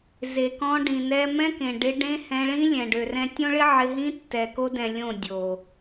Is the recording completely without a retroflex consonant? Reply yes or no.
no